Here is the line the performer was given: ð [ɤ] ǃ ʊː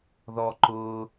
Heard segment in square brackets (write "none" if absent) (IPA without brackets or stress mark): ɔ